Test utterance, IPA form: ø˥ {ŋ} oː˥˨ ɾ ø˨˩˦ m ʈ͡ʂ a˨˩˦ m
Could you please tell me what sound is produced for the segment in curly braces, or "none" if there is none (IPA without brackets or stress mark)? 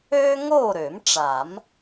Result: ŋ